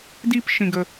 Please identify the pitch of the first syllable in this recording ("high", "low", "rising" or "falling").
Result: high